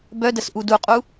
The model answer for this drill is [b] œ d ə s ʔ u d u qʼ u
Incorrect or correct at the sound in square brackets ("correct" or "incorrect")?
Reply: correct